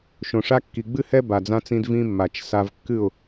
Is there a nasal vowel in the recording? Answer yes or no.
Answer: yes